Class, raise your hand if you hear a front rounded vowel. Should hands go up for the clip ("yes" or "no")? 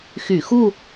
yes